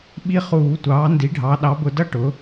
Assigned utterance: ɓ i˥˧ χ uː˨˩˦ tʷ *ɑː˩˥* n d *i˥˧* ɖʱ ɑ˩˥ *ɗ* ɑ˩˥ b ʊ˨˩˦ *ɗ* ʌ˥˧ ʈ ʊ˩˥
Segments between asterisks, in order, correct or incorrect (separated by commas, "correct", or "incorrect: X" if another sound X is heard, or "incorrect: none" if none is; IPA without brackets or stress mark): correct, incorrect: i˩˥, correct, incorrect: d